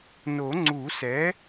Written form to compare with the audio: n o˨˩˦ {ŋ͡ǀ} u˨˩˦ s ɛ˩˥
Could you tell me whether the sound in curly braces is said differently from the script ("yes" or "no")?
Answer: no